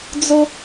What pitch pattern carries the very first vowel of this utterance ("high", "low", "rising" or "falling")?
high